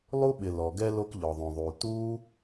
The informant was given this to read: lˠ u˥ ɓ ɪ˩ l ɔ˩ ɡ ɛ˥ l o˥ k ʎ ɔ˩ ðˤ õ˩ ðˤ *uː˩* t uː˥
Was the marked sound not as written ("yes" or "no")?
no